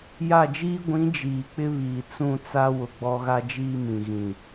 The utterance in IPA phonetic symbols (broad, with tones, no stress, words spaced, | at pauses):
ja˦˨d͡ʒiː˦ ɡʷĩ˨˦ d͡ʒiː˨k͡pɪ˦βiː˨ t͡sũ˦˨ t͡sa˦ wʊ˨ɡ͡bɔ˦ɣa˦ d͡ʒiː˦mĩ˨ ɣĩ˨